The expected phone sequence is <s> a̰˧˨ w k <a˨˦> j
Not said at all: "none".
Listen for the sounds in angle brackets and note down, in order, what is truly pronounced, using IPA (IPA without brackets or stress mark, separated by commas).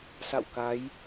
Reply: s, a˨˦